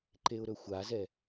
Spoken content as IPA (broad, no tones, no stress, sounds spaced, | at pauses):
ǃ e ʊ̯ ɾ ɵ xʷ a z ɛ